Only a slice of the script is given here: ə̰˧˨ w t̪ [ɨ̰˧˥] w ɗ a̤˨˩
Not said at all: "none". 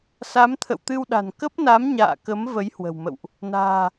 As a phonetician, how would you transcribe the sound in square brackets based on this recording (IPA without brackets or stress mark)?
ɨ˧